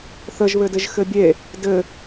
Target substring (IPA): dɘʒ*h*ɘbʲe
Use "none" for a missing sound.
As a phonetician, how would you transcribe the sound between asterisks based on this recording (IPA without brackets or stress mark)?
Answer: x